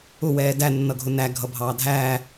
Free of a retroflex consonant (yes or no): yes